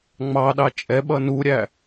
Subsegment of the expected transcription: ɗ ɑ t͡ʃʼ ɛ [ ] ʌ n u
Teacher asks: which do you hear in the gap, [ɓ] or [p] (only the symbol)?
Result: ɓ